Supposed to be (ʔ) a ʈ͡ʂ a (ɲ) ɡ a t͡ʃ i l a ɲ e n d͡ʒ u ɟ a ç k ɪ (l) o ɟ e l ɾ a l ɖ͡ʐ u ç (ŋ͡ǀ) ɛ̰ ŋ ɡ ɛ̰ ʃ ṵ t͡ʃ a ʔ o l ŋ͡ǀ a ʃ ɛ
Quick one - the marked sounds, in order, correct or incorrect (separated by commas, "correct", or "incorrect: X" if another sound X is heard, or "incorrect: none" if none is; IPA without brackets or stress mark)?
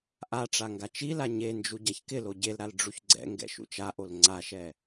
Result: correct, incorrect: ŋ, correct, incorrect: ɡ͡ǀ